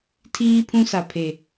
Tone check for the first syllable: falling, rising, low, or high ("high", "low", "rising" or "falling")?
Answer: high